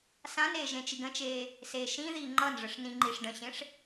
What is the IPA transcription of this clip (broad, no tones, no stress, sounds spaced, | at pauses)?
s ã n eː ʒ ẽ t͡ʃ i ɡ ə̃ t͡ʃ eː | s eː ʃ ĩ ð iː ŋ͡ǃ ʌː n ʐ ə ʂ n ĩ ŋ͡ǃ i ʂ ɖ ə̃ ɕ ẽ ʂ